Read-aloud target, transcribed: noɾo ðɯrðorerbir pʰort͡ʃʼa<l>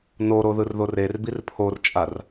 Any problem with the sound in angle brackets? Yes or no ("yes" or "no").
yes